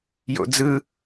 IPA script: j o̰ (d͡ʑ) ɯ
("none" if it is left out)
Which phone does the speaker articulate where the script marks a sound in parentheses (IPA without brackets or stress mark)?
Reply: d͡z